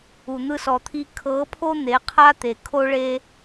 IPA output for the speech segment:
u˨ n̪ ɯ˧ s ɔ˨ t̪ʰ i˧ kʰ ɤ˨˦ pʰ o˦ n̪ e˨˦ qʰ a˦ t̪ e˨ kʰ o˦ ɭ e˦

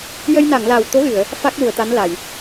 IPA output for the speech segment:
j ə˧ j n a˨˩˨ ŋ l a˨˩ w t̪ o˧˥ ɣ ɨ˨˩˨ ə̯ | f a˦˥ k̚ l u˨˩˨ ə̯ t̪ a˧˥ n l a˨˩˨ j

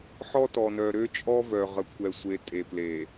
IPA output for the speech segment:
ħ ɔ˦ t ɔ˨ n œ˨ ɾ ø˦ t͡ʃʼ ɔ˦ v œ˨ ʁ ə˨ kʷʰ ɛ˨ sʷ e˨ tʼ e˨ p l e˨

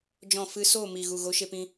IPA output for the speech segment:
d͡ʒ ɔ̃˦˨ f ɨ˦ s oː˦˨ m i˨ ɣ u˨ ɣ o˨˦ ʃ e˧ p ĩ˧

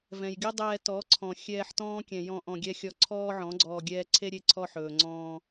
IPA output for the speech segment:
v ɛ̃˨ j ɡʲ ɵ˦ dˤ ɛː˧ t ɔ˨˦ ǀʰ ɔ̃˨ xʲ ɛː˧ ħ t ɔ̃ː˦ kʲ ɛ̃˨ j ɔ̃˧ ʔ ɔ̃˧ ɡʲ ɛ˦ xʲ ɔ˧ ǀʰ ɔː˦ ʕ ɔ̃˨˦ ɡ͡ǀ ɔː˧ ɡʲ ɛː˦ ǀʰ e˦ ɾʲ e˦ ǀʰ ɔ˧ ħ ɵː˨ ŋ͡ǀ ɔ̃ː˧

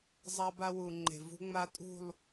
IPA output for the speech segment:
zˤ a˦ b a˦ w u˨ ŋ͡ǃ e̤˨ v ṳ˦ ŋ͡m a˦ tʼ ṳ˦˨ lˠ

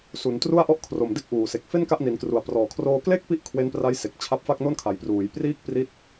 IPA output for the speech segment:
s u˩˦ n t r u˥˩ a̯ ʔ ɔ˥˩ ʔ kʰ r o˨˩ m d e˥˩ k̚ ʔ uː˨˩ s e˨˩ k̚ f e˥˩ n k a˥˩ ʔ n i˩˦ n k r u˨˩ a̯ p r ɔː˨˩ kʰ r oː˧ k l e˥˩ k̚ p i˦˥ ʔ kʰ w e˦˥ n p r a˦˥ j s e˨˩ k̚ t͡ɕʰ a˦˥ p̚ f a˥˩ k̚ n o˥˩ n kʰ a˩˦ j p r uː˩˦ j p r iː˥˩ k̚ p r i˦˥ t̚

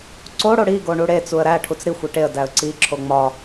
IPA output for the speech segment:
ǀ o ɽ o ɽ i ɡ o ɳ u ɽ e t͡s u ə̯ ɾ æ ʈʰ u t͡s ɾ i xʷ e ʈ e ə̯ d æ ə̯ ǀ i ǁʰ o ŋ͡m ɒ

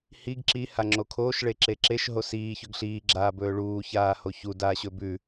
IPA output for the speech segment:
h i ɡ ǁ i h a ŋ͡ǁ o kʰ oː ʃ ɭ e ǁ e ǁ e ʃ ɦ o s iː ç ɵ ɡ ɬ iː ɡ͡ǁ aː b ɵː ɭ uː ç aː h o ç u d aː ɕ ɵ b ʉ

